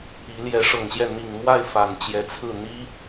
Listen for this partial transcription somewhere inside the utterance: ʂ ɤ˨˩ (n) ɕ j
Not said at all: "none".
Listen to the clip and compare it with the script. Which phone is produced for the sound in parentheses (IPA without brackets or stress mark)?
ŋ